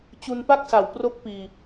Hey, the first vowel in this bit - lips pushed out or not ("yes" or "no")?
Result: yes